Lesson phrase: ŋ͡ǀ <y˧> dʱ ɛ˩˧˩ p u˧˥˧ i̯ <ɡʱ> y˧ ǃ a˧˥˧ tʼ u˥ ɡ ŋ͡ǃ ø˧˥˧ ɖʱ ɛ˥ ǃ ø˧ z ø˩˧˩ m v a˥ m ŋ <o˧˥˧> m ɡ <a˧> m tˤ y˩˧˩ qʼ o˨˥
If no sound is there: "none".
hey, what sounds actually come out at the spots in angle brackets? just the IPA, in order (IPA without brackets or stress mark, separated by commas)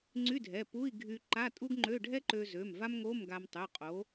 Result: y˧˥˧, ɡʱ, o˧˥˧, a˧